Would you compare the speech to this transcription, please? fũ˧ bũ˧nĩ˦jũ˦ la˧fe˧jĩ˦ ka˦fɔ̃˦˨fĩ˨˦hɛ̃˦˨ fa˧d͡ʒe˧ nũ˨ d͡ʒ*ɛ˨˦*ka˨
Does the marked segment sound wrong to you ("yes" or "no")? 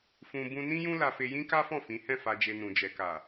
yes